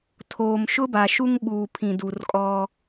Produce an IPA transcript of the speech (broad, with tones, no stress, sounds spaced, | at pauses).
tʰ oː˨ m ʃ ʊ˦ b a˨ ʃ u˦ ŋ ɓ uː˨ pʰ ĩ˨ d u˨ r kʼ ɔ˦